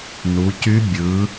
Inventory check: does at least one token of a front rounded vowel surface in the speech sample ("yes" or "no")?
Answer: yes